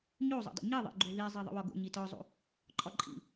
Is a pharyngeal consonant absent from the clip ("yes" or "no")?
yes